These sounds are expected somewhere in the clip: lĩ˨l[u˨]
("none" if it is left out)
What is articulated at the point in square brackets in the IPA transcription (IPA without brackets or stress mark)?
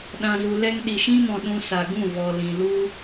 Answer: u˦